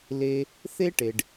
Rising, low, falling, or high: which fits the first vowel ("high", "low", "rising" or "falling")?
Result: low